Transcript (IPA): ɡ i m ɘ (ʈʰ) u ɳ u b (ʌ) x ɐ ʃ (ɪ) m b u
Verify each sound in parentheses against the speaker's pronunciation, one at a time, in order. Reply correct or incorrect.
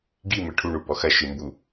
correct, incorrect: ɔ, incorrect: ɨ

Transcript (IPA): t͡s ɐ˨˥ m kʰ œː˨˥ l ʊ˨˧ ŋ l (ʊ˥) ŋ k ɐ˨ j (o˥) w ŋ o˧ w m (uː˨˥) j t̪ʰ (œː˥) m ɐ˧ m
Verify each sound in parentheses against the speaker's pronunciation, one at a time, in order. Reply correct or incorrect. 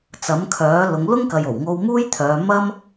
correct, incorrect: o˨˩, incorrect: uː˥, incorrect: œː˨˧

